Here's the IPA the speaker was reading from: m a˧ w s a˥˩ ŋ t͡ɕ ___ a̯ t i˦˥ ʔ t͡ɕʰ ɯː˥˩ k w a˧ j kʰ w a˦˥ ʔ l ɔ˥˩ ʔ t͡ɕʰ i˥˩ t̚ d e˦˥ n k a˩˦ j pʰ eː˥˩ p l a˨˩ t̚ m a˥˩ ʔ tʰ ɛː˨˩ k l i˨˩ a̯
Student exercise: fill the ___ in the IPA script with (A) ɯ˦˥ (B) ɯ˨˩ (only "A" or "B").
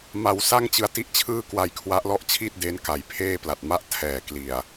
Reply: A